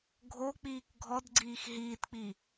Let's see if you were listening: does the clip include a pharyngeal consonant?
no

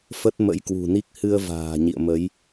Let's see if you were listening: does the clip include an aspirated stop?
no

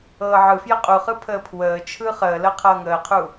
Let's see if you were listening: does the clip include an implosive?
no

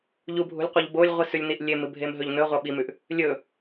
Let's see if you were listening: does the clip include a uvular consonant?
yes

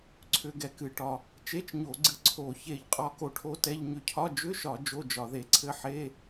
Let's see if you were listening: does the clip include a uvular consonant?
yes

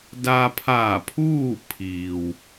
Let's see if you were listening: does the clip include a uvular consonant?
no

